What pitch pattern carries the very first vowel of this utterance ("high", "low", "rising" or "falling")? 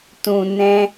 low